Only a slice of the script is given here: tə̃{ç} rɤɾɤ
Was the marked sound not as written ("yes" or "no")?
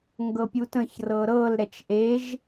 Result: no